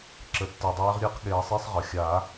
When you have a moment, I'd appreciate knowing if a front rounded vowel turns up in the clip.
no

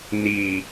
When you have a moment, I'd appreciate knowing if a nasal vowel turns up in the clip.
no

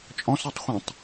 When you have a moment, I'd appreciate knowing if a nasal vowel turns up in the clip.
yes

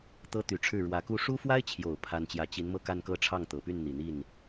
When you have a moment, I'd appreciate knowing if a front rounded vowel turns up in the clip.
yes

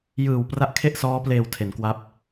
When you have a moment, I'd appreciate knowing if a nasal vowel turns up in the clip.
no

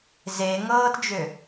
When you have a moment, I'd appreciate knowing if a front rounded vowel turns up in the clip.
yes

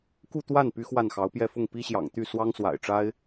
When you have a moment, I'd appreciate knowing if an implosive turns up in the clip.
no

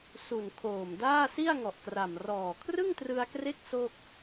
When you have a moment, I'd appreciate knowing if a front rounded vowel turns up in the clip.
no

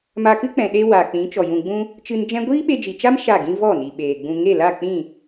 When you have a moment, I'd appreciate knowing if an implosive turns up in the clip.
yes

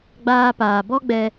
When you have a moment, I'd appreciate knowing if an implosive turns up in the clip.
no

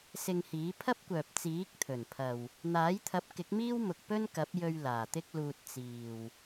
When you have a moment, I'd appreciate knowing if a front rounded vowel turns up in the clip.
yes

